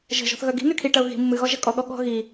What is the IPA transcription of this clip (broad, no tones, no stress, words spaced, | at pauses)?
ʒə̤ ʒɔ̤θɣœɡi̤ny kʰiʈɐʊ̯ ɣi̤ mːɨɣɔ ʒɐkʼɔɠɔ ɠɔ̤ ɣi